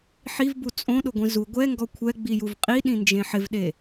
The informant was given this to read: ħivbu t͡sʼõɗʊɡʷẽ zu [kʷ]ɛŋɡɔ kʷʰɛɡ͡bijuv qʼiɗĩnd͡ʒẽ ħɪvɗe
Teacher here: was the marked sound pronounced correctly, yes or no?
no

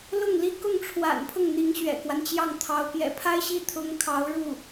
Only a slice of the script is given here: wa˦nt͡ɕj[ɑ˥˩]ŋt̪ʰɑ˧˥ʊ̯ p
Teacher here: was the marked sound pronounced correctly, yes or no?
yes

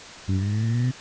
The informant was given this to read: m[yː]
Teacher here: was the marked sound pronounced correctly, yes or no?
yes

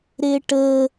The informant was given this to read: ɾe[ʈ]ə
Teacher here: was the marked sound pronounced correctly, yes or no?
yes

